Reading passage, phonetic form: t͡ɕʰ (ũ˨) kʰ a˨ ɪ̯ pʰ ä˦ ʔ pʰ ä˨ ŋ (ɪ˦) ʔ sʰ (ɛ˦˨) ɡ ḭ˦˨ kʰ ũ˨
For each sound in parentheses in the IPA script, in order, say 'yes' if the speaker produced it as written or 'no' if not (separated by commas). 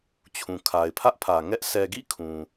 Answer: yes, no, no